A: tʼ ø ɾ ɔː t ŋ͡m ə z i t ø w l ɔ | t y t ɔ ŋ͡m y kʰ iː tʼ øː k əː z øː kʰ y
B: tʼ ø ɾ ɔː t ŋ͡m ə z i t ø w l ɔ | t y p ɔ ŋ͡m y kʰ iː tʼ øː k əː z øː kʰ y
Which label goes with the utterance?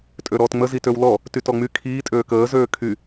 A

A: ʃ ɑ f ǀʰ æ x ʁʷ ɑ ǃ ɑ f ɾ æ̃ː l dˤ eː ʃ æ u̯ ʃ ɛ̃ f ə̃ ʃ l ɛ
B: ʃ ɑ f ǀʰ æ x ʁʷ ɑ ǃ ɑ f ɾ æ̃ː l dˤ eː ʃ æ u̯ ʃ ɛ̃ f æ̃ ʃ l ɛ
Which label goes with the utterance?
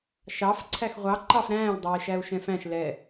B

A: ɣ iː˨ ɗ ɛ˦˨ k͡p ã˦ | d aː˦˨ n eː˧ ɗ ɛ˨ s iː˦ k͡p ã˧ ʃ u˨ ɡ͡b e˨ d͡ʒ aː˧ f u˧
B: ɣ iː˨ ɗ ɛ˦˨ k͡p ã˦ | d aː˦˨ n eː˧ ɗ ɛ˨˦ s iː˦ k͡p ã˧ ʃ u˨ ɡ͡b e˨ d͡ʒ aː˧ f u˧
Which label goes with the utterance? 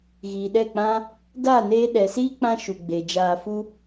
A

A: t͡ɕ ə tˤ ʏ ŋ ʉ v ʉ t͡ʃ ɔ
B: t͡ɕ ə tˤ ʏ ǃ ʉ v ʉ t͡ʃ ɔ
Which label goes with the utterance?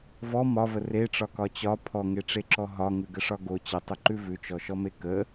B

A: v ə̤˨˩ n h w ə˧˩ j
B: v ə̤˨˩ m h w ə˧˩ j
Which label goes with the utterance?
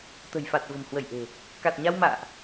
B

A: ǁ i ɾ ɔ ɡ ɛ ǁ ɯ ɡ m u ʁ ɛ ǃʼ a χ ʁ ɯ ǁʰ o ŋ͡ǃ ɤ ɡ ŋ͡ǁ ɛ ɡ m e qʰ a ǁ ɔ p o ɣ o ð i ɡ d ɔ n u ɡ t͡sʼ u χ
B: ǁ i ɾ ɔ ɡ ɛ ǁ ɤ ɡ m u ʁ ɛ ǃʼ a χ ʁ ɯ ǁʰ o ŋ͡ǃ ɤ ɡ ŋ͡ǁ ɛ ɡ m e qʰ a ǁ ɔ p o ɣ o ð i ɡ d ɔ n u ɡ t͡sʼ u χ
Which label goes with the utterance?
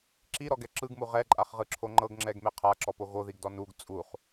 A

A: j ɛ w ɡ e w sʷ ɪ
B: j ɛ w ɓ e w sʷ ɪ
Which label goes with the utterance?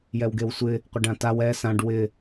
A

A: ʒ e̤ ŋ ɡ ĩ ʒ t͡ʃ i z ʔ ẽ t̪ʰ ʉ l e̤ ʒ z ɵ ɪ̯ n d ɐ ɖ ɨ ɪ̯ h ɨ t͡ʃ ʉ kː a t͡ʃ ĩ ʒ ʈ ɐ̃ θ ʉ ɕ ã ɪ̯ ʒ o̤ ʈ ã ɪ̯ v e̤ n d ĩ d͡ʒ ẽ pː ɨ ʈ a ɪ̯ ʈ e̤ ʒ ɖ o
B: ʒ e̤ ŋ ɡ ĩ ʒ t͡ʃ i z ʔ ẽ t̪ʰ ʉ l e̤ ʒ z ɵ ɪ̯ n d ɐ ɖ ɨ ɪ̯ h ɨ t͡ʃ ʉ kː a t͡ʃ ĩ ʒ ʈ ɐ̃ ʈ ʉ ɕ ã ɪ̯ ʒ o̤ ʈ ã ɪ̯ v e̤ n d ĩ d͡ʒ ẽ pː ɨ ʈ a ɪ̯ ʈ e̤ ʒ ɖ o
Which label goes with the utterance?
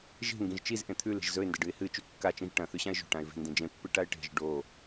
A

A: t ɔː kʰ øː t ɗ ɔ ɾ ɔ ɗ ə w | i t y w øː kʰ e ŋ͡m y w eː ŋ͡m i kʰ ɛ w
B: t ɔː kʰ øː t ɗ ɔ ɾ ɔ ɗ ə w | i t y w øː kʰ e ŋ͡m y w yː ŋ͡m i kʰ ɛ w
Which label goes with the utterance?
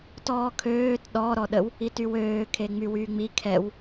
B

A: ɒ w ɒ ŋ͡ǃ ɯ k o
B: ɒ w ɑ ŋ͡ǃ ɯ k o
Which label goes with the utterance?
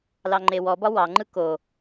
B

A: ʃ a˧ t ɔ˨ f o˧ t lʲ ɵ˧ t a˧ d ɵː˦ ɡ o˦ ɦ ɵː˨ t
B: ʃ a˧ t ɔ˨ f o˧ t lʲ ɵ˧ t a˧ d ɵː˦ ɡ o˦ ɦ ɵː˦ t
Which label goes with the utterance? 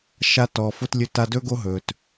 A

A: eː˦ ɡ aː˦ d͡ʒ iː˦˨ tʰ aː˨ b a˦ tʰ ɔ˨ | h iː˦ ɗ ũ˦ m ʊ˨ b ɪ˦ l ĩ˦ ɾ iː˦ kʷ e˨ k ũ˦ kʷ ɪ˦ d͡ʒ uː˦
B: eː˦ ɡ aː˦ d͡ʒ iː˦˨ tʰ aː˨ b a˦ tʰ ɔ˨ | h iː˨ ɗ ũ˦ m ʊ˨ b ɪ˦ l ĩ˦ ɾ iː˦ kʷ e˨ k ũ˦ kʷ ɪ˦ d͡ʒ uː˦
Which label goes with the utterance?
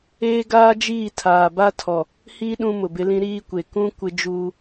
A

